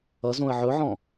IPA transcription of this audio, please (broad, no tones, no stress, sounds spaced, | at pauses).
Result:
ʌ z õ ə̯ ʕ ɵ ʕ ɔ̃